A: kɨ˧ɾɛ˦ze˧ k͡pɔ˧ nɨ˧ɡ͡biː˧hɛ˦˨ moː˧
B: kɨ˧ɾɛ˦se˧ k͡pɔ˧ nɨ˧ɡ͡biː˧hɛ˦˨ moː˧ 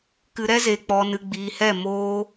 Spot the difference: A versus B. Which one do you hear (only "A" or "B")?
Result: A